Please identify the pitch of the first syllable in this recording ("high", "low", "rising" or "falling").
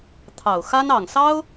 low